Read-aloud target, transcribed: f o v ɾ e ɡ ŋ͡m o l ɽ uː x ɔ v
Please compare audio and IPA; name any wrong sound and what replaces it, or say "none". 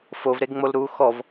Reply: ɽ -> ɾ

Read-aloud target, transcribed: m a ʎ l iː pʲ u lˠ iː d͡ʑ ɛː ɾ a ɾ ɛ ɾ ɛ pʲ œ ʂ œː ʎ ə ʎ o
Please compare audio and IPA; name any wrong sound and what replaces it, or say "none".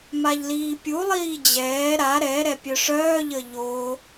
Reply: none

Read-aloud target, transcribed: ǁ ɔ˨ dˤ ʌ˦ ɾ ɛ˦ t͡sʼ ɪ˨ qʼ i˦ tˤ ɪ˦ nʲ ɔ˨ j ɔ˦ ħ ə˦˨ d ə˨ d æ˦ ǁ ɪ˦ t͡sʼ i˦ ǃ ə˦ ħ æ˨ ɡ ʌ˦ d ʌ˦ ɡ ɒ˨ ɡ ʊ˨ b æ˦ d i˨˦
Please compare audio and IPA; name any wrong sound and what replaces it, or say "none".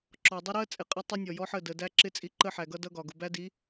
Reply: ɛ˦ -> ɜ˦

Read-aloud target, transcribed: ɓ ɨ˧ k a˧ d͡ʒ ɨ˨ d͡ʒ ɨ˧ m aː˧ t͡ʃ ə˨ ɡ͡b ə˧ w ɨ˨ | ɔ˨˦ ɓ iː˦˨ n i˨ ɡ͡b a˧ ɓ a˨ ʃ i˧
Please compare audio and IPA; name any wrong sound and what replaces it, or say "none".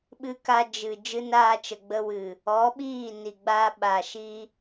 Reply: m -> n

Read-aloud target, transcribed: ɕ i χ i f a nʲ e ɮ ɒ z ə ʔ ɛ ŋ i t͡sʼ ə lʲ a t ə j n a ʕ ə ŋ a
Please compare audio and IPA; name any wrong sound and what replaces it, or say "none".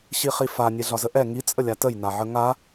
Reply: none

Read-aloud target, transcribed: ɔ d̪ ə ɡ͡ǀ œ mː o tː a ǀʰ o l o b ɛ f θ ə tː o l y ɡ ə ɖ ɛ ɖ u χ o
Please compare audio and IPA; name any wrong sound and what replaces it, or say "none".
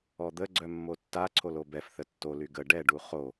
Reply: none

